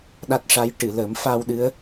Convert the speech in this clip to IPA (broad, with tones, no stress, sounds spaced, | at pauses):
ɗ a˦˥ t̚ ʂ a˧˥ j ʈ ɨ˨˩˨ l ə˨˩˦ m f a˧ w ɗ ɨ˧˥ ə̯